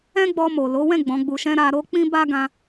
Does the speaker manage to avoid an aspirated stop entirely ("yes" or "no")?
yes